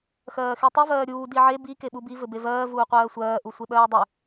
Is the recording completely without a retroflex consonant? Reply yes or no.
yes